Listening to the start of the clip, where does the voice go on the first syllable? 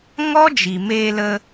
high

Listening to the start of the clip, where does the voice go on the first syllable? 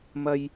low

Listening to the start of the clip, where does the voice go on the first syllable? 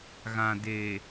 low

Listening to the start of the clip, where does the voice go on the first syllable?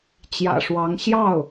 low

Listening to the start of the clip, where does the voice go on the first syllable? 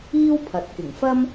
high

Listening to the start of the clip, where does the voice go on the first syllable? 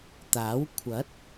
rising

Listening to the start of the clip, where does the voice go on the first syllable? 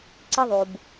high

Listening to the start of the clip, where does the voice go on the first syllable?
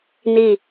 falling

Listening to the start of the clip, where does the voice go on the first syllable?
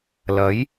rising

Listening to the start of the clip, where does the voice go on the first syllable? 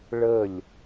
falling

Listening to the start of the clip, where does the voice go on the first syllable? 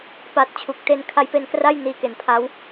low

